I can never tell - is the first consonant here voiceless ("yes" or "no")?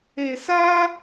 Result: yes